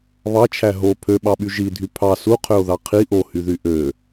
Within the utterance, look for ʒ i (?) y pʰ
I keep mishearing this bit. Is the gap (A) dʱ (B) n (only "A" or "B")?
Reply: A